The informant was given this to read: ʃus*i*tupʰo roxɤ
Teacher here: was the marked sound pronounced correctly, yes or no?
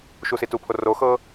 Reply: yes